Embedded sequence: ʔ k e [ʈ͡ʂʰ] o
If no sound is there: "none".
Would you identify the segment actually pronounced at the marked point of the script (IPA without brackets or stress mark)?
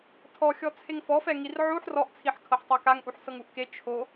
t͡ʃʰ